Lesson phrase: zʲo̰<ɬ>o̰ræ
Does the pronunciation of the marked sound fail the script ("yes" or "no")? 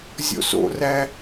yes